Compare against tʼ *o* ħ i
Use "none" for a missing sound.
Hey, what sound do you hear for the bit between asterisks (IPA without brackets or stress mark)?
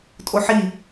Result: o